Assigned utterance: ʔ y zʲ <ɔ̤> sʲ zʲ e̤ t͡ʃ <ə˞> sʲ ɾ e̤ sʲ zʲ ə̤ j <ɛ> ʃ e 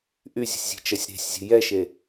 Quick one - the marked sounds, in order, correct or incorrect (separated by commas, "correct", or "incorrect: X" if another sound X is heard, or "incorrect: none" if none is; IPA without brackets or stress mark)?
incorrect: ə̤, incorrect: ɜ, correct